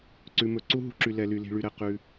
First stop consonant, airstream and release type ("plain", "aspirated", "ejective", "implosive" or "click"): click